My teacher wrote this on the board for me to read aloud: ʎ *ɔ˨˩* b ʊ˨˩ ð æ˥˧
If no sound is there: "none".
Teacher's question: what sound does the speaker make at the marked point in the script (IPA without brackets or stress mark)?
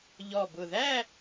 ɔ˨˩